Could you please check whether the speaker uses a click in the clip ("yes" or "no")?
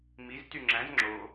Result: yes